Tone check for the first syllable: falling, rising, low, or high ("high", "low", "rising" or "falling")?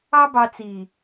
high